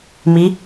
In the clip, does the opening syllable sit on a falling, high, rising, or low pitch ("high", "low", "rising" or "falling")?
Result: rising